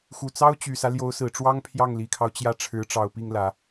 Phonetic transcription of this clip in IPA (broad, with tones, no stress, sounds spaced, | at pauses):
x u˨˩ t͡s ɑ˥ ʊ̯ t͡ɕ y˨˩ s ä˦ l j o˧˥ ʊ̯ s ɹ̩˨˩ ʈ͡ʂ w ɑ˥ ŋ pʰ j ɑ˥˩ ŋ l i˨˩ kʰ ɑ˦ ʊ̯ t͡ɕ j ä˥˩ ʈ͡ʂʰ ɻ̩˧˥ ʈ͡ʂ ɑ˨˩ ʊ̯ p i˥˩ ŋ l ä˨˩˦